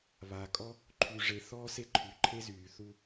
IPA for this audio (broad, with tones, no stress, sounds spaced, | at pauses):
β aː˨ kʼ ɔ˦ | ǃʰ y˨ ʐ e˨ θ ɔː˦ s e˦ ǃʰ y˨ ǃʰ e˦ z yː˨ θ u˦